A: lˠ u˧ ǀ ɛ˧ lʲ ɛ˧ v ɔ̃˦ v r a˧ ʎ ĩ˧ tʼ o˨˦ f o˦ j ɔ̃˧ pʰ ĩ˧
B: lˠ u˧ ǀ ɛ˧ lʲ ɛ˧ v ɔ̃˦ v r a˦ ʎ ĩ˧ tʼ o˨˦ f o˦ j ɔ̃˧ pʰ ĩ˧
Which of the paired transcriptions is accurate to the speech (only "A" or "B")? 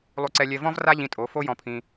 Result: B